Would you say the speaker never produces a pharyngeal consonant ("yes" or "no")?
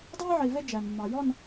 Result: no